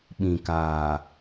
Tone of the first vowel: low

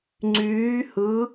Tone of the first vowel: rising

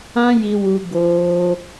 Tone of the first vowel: high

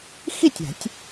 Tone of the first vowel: falling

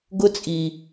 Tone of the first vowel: high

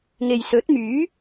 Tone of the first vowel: low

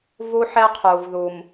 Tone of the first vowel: high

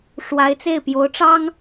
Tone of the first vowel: rising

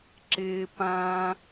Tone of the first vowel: high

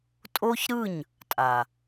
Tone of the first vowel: high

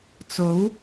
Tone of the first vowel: rising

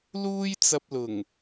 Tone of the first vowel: high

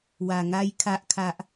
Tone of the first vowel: low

